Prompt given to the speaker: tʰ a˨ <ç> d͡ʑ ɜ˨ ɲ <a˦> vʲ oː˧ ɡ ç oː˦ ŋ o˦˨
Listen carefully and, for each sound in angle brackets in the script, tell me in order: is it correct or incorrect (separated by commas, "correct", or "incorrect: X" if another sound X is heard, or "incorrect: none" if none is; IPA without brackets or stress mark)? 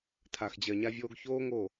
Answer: incorrect: x, incorrect: a˧